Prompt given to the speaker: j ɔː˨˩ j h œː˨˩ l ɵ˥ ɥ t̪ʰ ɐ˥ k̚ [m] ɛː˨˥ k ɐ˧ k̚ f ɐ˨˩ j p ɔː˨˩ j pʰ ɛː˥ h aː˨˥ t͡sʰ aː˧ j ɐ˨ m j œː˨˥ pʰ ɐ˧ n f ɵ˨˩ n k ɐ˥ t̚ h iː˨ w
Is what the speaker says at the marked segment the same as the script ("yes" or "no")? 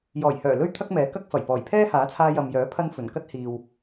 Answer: yes